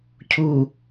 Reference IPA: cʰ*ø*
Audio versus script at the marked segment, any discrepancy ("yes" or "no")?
yes